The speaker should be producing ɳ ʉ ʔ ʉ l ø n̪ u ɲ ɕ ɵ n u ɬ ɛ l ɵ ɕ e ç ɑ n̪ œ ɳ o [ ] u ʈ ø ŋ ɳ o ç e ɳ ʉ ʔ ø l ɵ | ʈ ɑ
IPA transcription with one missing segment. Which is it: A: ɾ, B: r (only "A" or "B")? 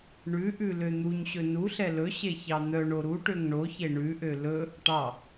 A